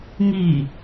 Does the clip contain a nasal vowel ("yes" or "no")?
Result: no